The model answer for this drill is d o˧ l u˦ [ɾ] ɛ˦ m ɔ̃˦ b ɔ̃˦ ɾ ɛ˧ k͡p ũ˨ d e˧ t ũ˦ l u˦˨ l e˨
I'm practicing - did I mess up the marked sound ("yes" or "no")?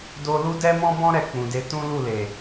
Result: yes